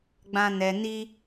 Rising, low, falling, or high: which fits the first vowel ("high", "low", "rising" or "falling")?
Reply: high